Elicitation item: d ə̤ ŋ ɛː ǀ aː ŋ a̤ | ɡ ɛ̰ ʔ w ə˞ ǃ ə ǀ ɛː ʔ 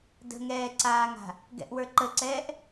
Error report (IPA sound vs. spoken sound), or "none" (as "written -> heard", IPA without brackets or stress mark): none